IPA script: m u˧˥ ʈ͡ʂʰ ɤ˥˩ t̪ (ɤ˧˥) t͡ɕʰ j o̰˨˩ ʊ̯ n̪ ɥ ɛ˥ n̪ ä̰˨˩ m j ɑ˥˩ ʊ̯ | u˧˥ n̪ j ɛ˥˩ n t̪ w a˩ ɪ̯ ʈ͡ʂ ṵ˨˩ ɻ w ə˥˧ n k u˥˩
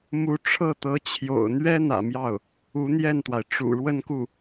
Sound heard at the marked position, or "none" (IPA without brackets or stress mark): ɤ˧˥